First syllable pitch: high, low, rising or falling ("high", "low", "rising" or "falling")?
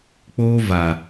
high